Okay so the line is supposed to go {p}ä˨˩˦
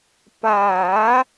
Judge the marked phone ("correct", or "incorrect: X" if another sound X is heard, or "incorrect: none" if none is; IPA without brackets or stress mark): correct